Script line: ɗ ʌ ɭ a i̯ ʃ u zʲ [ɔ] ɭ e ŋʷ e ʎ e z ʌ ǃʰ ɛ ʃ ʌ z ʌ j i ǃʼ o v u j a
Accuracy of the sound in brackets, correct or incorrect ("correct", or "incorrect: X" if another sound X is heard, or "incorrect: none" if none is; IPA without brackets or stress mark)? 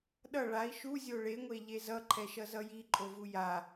incorrect: o